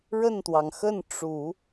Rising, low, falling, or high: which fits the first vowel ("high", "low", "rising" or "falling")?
falling